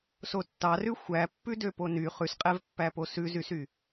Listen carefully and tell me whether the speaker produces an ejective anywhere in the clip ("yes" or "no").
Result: yes